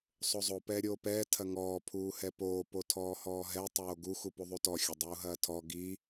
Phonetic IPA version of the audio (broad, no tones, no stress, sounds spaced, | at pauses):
sˤ o zˤ o p ɛː ɾʲ oː p ɛː tʰ ɐ ŋ ɔː pʰ uː h ɛ p oː p o tʰ ɔː h ɔː ɦ ɛ tˤ oː ɡ u x u p u ðˤ u t ɔ xʲ ɐ dˤ uː ɦ ɐː tʰ ɔ ɡ i